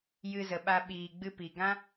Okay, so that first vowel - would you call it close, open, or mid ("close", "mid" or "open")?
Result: close